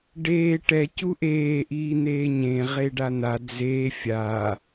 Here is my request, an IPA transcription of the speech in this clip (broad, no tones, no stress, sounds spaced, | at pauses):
ɖ eː ʈ ɛ c u ʔ eː ʔ iː n̪ eː ɲ ẽ ʁ e ɖ a n̪ a d͡z eː fʲ a